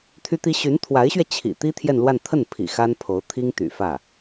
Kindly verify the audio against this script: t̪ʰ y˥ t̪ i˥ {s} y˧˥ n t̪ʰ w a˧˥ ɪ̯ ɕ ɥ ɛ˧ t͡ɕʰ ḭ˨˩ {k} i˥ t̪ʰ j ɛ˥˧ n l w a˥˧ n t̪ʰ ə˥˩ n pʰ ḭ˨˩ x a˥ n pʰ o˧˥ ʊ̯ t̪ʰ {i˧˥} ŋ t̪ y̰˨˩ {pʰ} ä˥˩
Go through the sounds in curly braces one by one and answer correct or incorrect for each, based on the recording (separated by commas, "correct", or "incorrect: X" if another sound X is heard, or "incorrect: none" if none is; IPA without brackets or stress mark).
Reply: incorrect: ɕ, incorrect: t̪, incorrect: i˥, incorrect: f